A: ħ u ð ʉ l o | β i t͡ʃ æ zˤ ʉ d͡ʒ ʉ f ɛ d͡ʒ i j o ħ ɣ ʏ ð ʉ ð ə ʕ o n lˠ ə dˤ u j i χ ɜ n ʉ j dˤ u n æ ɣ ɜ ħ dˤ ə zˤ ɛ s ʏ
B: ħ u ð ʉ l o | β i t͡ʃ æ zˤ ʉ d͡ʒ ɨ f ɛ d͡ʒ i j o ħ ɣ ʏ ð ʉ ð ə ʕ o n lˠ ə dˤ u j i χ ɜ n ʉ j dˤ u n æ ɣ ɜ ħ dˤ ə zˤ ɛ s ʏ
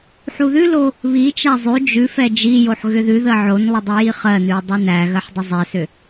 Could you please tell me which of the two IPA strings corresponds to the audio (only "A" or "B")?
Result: A